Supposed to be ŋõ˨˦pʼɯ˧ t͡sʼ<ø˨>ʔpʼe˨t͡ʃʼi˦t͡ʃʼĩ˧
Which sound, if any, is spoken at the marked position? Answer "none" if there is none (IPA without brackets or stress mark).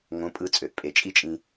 ø˨